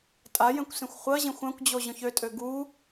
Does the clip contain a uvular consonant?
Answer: yes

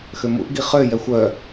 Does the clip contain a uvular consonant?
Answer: yes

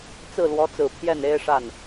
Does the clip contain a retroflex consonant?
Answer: yes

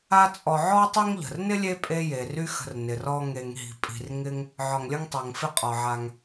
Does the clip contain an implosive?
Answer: no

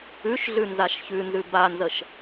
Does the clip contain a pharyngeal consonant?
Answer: no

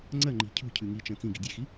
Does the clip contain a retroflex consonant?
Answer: no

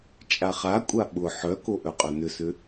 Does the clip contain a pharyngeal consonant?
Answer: yes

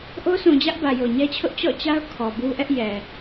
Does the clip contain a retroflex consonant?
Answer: no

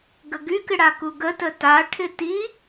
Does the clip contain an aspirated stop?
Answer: yes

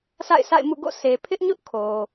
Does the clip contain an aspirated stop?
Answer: yes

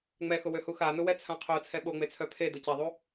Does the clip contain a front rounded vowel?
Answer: yes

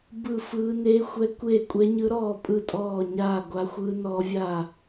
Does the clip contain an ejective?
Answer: yes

